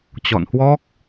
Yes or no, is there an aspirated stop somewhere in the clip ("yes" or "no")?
no